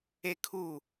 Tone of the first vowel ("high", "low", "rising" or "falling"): high